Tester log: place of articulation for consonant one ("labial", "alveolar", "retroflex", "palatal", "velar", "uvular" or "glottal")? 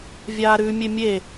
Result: labial